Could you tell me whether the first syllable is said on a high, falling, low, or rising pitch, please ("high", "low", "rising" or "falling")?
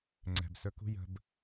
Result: low